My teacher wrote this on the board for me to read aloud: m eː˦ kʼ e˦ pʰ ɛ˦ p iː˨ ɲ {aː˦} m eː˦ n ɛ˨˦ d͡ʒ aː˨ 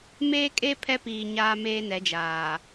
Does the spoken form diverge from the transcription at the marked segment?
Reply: no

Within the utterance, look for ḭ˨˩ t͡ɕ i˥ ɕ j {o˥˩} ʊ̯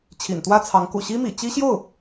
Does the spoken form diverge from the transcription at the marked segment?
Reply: no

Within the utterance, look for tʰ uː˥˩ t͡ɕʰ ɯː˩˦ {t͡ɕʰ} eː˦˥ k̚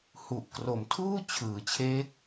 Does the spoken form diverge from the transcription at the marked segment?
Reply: no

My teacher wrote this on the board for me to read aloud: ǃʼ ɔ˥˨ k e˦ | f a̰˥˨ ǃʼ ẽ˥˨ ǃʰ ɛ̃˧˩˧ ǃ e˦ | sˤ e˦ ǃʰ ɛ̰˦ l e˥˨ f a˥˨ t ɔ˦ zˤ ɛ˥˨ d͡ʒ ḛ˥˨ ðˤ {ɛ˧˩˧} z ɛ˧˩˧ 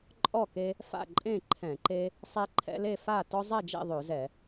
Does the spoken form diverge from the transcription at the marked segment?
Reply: yes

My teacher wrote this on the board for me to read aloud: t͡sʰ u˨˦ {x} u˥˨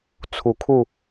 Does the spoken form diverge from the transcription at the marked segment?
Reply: yes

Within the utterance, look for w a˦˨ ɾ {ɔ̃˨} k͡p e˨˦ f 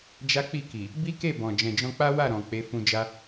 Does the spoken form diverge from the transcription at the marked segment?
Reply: no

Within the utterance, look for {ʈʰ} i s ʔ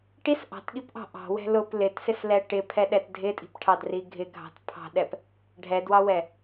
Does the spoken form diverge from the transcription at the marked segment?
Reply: yes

